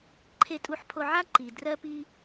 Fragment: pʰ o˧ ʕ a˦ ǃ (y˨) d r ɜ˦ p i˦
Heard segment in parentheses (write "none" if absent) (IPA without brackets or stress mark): i˨